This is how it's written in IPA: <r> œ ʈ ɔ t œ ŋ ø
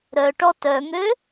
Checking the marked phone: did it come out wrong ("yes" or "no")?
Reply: yes